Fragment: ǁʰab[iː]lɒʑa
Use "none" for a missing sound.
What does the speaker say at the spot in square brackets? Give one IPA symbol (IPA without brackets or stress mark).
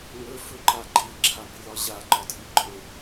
i